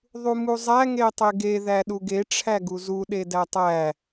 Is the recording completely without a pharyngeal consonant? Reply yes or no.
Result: yes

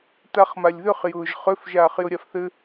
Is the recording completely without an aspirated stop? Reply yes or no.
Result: yes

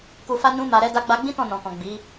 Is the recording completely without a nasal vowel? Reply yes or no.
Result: no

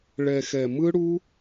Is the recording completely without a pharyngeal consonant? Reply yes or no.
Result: yes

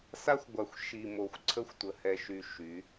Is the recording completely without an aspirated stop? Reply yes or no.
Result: no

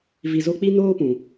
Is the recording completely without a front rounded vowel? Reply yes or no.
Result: yes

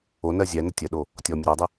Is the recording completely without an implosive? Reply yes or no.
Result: no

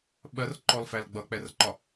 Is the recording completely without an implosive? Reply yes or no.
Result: no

